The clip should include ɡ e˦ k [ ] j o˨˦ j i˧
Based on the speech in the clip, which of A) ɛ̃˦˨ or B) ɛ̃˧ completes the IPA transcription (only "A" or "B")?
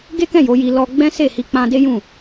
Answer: A